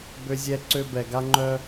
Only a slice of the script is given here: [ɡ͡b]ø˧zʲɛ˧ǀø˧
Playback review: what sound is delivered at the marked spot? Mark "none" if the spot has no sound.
b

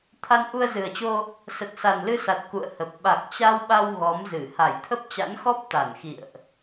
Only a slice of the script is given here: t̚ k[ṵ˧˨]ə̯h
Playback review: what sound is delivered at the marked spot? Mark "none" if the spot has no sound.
ṵ˧˨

